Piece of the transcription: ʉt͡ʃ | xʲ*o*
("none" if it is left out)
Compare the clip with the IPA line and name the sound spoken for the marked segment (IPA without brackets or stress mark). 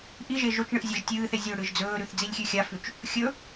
ɵ